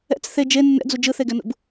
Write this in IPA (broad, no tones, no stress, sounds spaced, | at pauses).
ɛ̰ t͡s θ e d͡ʒ e nː ɛ̰ d͡z u d͡ʒ ɯ θ e ɡ ɛ n ṵ b